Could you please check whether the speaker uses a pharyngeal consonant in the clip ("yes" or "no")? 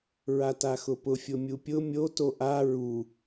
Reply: no